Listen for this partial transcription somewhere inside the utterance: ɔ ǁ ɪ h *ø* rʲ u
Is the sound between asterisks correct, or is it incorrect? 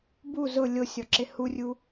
incorrect